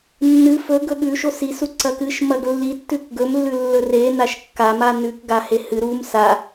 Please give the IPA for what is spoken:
nː ɨ f ɵ ɡ ɵ ɠ ʉ ʃ o s i s u ǀ ɐ k ɨ ʃ m ɐ ɡ lː i tː ʉ k ɡ ɵ m lː ʉ lː ɵ r e n a ʃ kː a m a n ʉ k ɡ a h e h ɨ ɾ u m s a

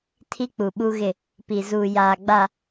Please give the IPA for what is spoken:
tʰ i˦ k͡p u˨ ɓ u˦ ɣ ɪ˦˨ | p i˨ z uː˨ j aː˨ ɡ͡b a˨

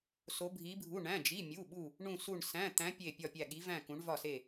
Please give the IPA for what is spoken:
s o˧˥ bʱ i˧˥ bʱ u˧˥˧ ɳ æ̃˧˥˧ d͡ʒ i˧˥˧ mʲ u˧˥˧ ɓ u˥˧ | ɳ ũ˥˧ s u˥˧ ɳ s æ̃˧˥˧ t̪ æ̃˧˥ pʲ e˥˧ pʲ ɒ˥˧ pʲ æ˥˧ ɠ i˧˥ v æ̃˥˧ k ũ˧˥ ɳ v ɒ˥˧ s e˥˧

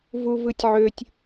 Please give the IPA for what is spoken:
v u v ɯ tʲ ʕ ø tʲ

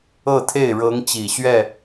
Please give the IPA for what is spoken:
ɤ˥˧ t̪ʰ e˥˩ ɪ̯ ɻ ɤ˧˥ ŋ t͡ɕ i˨˩ ɕ ɥ ɛ˥˩

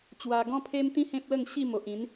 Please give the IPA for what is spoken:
t͡ɕ w a˧ ɡ ɔ̃˦ pʰ e˦ m t̪ ĩ˦ h ẽ˦ p̚ l ə˥˧ ŋ ɕ i˥˧ m o˨ ʔ ĩ˨˦ n

